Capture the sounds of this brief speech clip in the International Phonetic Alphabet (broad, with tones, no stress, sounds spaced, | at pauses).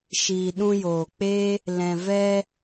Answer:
ʃ iː˨ ɗ ũ˧ j oː˨ k͡p e˦ | l ɛ̃˨ v ɛ˧